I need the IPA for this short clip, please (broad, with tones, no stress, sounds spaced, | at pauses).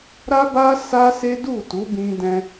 ɾ a˦ b a˦ s a˦ s e˦ d u˦˨ t u˨˦ b ĩ˧ d ɛ̃˧